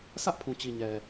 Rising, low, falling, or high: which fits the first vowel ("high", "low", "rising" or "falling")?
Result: high